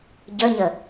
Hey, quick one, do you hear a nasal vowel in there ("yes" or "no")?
no